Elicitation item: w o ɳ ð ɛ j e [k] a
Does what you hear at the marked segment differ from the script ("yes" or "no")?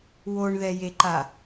yes